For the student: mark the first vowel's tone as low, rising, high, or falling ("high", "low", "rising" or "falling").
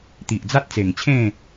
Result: low